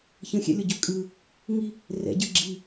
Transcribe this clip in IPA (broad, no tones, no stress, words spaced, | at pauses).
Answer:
çə̃xʲɛ̰lʲɔɟø kʼɯ | ŋi | rɛ̰ɟɯ ɡ͡ǁi